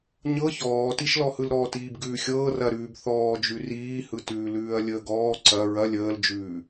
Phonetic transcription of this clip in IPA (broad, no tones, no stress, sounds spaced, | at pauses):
ɲ ɤ ç ɔː t i ʃ l ɔ h ɯ l ɾ ɔː t iː b ɡ ʉː xʲ ɤː r ɐ ɾ ʉː b θ ɔː d͡ʒ ʉ r iː h ɯ t ʉː l ʉː ɐ̯ lʲ əː ɡ ɔː ǀ ɐ ɹ ɐ lʲ əː l d͡ʒ ʉː